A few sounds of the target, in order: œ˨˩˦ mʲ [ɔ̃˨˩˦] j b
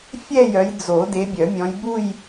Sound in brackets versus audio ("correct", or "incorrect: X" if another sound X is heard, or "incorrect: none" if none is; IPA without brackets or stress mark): incorrect: ɔ̃˨˦